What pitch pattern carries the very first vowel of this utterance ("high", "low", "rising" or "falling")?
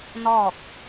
falling